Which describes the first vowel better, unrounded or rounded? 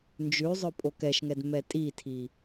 rounded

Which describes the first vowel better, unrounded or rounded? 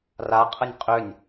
unrounded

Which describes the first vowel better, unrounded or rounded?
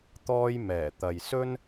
rounded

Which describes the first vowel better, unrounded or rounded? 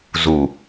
rounded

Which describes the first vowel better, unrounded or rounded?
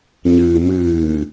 unrounded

